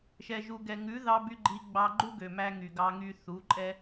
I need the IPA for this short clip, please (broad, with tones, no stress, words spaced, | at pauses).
ʃɛ˨ʒu˨ɡɛ˨ ŋʉ˨˦ðɑ˧by˧ ɡ͡ǃi˧ ɡ͡bɑ˧ɡ͡ǃu˦ɡø˨mæ˧ ŋy˨ɡɑ˧ŋy˧ θu˨˦ǃʼɛ˦